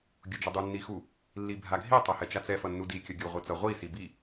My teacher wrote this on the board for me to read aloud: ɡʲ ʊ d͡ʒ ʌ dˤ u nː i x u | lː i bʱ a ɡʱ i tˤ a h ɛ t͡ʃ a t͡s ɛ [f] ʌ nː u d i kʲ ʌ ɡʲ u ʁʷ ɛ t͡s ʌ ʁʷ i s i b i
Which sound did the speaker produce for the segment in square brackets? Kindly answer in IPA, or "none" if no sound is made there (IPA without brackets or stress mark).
f